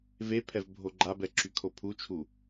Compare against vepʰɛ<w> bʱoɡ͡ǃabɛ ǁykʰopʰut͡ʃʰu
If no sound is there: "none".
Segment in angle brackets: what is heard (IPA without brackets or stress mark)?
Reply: v